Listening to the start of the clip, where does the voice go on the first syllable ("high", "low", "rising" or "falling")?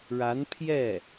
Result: rising